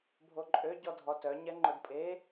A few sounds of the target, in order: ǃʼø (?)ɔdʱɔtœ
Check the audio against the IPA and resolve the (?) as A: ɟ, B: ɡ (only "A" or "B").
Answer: A